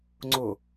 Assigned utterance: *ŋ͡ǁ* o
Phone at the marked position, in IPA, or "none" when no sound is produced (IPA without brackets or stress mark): ŋ͡ǀ